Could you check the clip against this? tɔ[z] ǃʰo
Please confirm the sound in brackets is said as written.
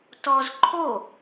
yes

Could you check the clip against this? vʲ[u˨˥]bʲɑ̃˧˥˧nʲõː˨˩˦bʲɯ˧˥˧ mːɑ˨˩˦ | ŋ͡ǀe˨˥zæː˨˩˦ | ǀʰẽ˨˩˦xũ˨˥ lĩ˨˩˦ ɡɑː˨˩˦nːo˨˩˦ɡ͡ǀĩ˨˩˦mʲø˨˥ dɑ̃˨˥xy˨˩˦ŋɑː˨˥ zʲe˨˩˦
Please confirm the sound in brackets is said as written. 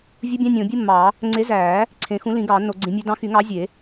no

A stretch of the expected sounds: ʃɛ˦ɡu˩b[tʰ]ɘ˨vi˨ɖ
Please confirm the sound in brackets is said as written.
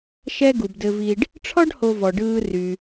no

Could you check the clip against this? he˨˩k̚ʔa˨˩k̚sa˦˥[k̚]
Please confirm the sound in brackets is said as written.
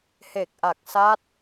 no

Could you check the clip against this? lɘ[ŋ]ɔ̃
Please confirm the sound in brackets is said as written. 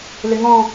yes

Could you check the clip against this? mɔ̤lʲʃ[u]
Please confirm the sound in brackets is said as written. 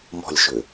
no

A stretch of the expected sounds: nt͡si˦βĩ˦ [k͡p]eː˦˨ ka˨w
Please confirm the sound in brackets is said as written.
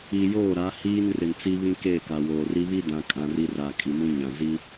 no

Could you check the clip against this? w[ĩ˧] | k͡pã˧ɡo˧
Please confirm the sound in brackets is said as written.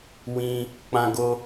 yes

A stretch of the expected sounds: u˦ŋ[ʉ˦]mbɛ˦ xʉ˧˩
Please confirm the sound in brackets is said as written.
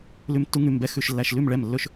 no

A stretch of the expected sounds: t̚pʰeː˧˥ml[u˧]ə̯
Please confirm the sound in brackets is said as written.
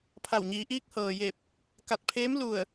no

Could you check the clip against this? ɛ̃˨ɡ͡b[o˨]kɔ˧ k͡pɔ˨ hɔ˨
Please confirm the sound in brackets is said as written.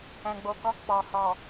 yes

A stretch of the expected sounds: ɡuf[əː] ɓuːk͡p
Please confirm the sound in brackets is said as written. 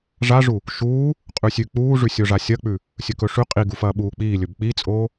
no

